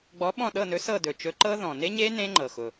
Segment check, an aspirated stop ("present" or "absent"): absent